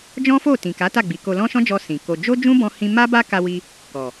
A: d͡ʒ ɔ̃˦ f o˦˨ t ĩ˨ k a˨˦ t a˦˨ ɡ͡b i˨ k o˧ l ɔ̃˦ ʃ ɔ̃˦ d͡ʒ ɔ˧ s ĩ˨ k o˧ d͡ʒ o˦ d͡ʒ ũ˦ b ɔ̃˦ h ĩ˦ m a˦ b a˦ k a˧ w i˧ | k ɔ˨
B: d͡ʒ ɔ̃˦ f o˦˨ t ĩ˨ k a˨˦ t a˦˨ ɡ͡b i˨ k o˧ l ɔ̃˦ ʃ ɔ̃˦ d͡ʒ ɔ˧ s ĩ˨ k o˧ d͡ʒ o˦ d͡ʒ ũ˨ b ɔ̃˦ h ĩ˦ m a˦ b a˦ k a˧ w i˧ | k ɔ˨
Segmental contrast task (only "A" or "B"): A